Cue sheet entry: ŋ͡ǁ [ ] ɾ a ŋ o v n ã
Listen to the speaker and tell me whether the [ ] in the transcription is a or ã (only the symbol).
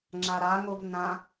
a